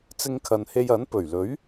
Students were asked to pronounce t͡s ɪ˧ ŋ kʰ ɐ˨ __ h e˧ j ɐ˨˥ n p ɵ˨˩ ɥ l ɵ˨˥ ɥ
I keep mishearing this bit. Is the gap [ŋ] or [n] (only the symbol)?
n